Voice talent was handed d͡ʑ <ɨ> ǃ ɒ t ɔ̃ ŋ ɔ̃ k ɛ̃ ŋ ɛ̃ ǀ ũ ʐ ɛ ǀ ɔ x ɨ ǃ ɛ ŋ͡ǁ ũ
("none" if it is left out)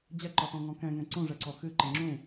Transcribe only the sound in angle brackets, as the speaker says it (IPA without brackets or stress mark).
ɛ